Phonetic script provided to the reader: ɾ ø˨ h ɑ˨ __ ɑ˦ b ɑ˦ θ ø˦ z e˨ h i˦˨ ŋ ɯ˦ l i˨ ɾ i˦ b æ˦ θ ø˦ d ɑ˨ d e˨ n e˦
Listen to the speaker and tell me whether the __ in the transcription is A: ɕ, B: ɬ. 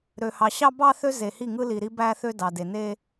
A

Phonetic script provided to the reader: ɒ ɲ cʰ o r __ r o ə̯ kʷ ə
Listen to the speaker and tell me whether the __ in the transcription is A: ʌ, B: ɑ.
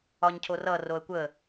A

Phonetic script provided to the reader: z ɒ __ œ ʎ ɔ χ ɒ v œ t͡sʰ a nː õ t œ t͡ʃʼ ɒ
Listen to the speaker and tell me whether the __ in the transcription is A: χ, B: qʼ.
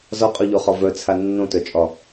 B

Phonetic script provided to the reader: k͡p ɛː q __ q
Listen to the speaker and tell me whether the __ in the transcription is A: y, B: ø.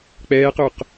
B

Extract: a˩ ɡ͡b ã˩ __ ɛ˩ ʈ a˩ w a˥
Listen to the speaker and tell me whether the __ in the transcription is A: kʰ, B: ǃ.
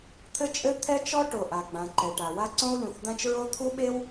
B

